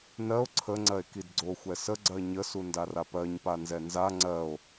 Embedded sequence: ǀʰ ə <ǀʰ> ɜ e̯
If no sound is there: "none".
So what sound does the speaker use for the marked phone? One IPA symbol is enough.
ŋ͡ǀ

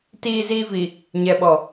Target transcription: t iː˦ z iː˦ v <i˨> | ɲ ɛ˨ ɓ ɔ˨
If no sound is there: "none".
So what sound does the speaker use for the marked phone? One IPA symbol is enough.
i˨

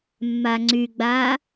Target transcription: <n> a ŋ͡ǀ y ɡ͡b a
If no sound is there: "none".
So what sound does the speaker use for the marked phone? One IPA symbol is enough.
mː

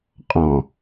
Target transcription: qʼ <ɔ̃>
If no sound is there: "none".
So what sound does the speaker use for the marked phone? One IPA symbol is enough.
ɔ̃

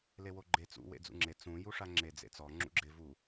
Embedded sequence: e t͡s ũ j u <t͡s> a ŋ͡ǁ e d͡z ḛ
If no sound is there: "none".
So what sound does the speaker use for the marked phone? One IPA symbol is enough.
ʂ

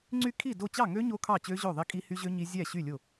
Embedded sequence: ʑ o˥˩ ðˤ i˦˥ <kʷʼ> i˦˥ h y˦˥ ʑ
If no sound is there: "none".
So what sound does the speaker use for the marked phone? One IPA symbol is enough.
kʼ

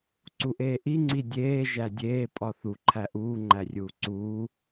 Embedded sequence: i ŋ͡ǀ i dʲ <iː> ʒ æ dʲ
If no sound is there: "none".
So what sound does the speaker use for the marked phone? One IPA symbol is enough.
eː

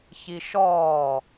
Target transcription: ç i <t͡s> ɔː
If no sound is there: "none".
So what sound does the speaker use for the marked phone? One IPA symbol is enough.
ʃ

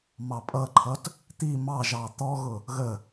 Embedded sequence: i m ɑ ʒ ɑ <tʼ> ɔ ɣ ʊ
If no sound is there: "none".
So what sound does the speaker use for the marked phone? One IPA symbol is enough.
t̪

